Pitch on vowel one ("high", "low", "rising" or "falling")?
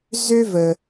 high